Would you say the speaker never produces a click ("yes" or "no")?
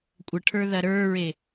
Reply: yes